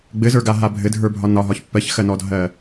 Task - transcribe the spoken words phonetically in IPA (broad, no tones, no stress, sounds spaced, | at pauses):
ɡ͡b ɘ z ə˞ ɡ a ɦ a bʱ ɘ dʱ ə˞ bʱ ɒ n ɒ ɦ ɒ ç pː ɜ ç x ɜ n ɔ dʱ ɜ